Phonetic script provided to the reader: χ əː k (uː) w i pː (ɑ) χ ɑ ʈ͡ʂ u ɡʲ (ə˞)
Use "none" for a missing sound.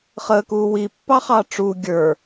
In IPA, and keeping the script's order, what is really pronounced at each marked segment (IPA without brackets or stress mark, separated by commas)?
uː, ɑ, ə˞